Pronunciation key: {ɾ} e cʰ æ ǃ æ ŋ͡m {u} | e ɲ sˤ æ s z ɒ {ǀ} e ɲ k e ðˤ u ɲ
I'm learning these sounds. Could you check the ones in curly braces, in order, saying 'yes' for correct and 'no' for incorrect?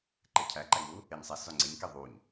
no, yes, no

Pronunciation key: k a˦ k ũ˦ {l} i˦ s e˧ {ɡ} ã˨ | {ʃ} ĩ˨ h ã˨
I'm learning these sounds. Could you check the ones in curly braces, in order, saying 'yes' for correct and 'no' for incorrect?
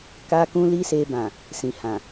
yes, no, no

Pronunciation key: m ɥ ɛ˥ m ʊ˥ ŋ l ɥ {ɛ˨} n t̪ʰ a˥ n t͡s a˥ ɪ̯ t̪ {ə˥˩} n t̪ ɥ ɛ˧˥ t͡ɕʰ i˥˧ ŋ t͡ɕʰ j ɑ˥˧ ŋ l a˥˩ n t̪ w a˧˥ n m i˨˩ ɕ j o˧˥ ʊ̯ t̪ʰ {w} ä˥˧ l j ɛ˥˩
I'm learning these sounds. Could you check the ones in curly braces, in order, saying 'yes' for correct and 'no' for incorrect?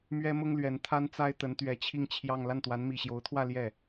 no, no, yes

